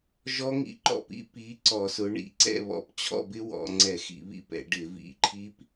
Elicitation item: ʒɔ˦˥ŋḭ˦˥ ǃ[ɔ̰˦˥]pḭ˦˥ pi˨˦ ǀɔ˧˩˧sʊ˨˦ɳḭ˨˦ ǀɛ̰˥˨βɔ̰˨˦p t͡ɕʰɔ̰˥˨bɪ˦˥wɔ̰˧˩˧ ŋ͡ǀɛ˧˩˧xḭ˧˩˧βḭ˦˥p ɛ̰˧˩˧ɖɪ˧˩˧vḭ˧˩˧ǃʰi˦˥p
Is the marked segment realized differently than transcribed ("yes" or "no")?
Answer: yes